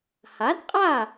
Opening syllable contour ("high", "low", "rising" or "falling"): rising